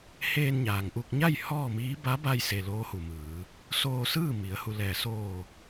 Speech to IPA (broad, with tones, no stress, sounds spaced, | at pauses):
h eː˧ n ɲ aː˩ ŋ ʔ u˧ k̚ ɲ a˥˨ j h ɔː˥˨ m iː˧˥ b a˧˥ b a˧ j s e˩ l oː˧˥ h u˩ m ɯː˩˧ | s oː˧ s ɯː˥˨ m i˩˧ ə̯ h u˧ l ɛː˧˩ s oː˧˩